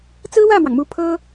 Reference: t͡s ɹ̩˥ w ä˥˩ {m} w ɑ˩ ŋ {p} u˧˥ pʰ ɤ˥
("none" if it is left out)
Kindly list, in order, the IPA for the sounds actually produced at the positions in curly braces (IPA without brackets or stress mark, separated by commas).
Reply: m, m